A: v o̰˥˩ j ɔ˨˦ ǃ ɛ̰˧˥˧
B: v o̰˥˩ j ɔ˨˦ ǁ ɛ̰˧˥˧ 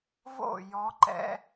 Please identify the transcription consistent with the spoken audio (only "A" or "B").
A